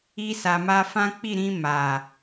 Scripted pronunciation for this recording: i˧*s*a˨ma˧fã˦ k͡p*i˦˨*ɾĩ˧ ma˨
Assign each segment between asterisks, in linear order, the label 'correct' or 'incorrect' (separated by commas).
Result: correct, correct